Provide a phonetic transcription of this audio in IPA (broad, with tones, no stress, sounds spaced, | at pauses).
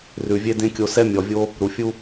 r ʉ˨ vʲ e˦ d ẽ˦ kʲ o˧ s ɛ˦ mʲ ɔ˨ vʲ o˦ | ɾ u˨ fʲ u˦